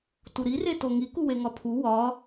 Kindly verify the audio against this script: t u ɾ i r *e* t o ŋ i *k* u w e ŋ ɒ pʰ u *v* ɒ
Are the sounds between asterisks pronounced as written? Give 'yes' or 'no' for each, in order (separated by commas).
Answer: yes, yes, no